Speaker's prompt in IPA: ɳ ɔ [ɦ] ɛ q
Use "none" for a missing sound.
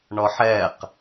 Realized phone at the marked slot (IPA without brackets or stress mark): ħ